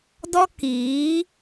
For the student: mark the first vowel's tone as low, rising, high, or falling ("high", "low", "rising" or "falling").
high